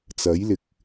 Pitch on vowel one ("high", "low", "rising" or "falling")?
rising